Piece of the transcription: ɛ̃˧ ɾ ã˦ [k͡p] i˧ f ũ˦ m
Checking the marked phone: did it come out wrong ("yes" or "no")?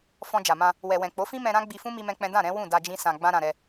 yes